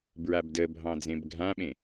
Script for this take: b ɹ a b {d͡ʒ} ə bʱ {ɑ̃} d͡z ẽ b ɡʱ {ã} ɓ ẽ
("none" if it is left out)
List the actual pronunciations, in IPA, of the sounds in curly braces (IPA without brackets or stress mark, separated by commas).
d, ɑ̃, ã